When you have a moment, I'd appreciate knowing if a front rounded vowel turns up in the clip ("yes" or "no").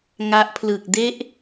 no